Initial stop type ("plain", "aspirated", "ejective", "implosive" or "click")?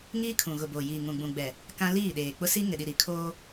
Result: aspirated